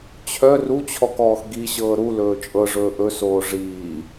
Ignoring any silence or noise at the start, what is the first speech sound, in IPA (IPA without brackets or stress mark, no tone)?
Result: t͡ɕʰ